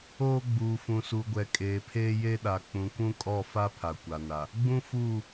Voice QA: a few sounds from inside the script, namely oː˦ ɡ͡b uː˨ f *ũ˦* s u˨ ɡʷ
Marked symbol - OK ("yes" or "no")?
no